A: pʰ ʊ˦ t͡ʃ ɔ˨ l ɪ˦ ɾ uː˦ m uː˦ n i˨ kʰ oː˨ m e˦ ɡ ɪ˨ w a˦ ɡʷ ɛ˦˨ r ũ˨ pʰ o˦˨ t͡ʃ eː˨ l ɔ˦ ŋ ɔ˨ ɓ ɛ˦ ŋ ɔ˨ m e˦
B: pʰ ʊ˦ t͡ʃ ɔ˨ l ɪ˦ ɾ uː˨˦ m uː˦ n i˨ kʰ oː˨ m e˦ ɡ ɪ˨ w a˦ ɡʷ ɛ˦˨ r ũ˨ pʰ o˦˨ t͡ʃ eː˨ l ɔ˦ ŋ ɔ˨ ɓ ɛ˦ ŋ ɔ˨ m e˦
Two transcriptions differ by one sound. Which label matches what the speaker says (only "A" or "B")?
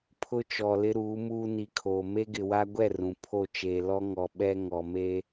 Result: B